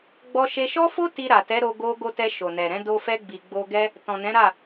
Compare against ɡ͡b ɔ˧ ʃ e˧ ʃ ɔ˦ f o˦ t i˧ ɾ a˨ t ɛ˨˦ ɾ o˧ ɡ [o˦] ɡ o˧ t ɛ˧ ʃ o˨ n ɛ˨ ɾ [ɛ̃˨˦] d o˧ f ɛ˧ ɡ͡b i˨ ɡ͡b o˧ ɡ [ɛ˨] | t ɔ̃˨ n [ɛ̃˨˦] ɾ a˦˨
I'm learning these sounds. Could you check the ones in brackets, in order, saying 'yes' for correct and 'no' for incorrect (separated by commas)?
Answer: no, yes, no, yes